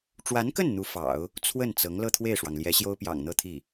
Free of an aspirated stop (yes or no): no